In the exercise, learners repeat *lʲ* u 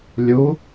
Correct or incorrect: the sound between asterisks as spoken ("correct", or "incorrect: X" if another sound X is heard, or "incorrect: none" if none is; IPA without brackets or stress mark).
correct